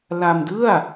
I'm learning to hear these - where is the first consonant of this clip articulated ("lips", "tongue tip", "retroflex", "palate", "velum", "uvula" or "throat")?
tongue tip